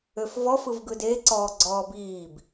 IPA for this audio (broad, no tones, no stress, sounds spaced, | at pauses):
ø f v ɔ f ɯ v ɡ ɯ d e ǀ ɔː ɡ͡ǀ ɔː b iː b